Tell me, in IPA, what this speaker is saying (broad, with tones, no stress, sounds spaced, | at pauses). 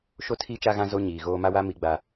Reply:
ʃ o˦ tʰ i˦ t͡ʃ a˦ ɣ ã˦ z o˦ ɲ iː˨ ɣ oː˦ m a˦ w a˦ m i˦ ɡ͡b a˦